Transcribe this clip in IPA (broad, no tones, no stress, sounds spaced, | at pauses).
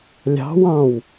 lʲ ɑ̤ w ɑ̃ w